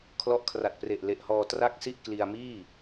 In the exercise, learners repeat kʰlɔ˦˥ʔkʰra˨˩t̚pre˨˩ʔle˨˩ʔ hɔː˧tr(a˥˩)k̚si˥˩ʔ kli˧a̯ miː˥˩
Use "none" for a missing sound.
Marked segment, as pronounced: a˥˩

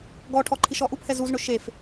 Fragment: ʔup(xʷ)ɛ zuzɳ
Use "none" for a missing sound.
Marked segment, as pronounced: h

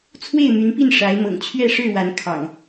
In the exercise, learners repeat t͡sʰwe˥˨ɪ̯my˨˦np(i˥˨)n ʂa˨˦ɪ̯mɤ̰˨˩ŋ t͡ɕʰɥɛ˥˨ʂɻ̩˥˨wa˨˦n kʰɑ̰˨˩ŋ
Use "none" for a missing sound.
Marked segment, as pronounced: i˥˨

